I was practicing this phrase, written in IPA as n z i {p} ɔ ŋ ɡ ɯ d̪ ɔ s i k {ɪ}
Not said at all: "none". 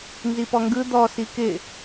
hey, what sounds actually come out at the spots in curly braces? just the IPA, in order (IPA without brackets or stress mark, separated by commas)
p, ɪ